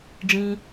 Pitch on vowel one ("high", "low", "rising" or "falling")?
low